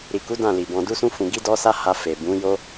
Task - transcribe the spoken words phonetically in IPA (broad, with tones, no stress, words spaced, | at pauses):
ɾi˨ku˨˦ dã˦˨li˨bɔ̃˧ du˦sũ˦fũ˧ ɡi˦dɔ˦sa˦ ha˧ fe˨bũ˨˦jo˦